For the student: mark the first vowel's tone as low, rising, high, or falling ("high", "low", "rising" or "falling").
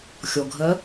low